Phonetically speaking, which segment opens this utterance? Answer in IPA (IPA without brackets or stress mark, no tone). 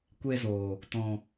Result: kʷ